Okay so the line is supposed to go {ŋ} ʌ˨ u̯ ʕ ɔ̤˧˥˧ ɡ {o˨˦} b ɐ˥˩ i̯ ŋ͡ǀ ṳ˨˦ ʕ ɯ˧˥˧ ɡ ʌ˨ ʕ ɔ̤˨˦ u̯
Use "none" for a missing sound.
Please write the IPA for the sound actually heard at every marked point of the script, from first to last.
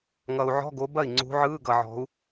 ŋ, o˨˦

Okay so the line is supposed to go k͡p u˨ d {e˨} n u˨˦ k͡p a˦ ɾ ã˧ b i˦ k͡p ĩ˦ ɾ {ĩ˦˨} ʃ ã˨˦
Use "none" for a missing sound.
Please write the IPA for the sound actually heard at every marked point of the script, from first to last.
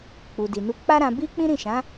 i˨, ĩ˦˨

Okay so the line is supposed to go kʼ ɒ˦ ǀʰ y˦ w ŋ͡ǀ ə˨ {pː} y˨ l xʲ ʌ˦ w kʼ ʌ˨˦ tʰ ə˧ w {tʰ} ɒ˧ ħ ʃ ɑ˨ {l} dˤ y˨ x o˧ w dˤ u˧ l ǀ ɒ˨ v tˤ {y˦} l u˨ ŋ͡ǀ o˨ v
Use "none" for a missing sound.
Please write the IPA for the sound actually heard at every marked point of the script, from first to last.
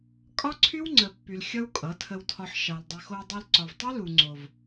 pː, tʰ, l, y˦

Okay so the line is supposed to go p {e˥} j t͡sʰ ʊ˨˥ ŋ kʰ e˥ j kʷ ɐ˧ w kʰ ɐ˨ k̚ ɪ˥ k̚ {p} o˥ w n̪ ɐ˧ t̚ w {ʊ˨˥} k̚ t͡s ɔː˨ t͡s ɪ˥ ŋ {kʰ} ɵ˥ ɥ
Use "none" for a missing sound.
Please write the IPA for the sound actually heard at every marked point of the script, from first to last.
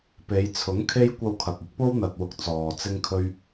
e˨˧, p, ʊ˧, kʰ

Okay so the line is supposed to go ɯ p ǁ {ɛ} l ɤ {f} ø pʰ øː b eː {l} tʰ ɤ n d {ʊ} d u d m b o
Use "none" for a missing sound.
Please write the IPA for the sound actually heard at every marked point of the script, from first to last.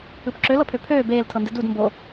ø, pʰ, l, ɯ

